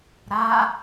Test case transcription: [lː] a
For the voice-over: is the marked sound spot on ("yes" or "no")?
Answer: no